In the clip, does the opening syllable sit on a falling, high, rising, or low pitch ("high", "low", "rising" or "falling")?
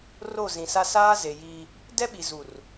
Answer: falling